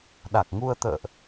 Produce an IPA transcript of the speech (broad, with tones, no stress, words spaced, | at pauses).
ɗa˨˩k̚ŋu˧ə̯t̪ə̰ː˧˨ʔ